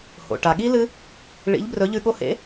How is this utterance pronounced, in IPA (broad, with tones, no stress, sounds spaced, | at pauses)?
h o̰˩ ʈ a˩ ɠ i˦˥ l ɨ˦˥ | ɭ ḭ˨˥ ʎ b r ɵ˨˥ ʎ ʉ˧ ɠ o˧ h ḛ˨˥